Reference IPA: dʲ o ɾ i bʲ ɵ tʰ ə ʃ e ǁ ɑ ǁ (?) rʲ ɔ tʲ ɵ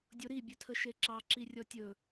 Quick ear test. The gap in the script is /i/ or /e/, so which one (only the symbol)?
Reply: i